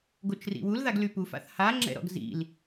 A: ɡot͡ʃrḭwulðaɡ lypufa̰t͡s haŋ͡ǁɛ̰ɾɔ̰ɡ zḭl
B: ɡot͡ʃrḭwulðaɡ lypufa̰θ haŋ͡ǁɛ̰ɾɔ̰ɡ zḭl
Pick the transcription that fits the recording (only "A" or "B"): B